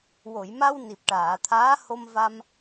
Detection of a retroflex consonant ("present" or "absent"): present